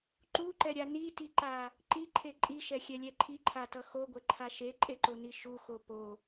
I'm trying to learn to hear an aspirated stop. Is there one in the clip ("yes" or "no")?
yes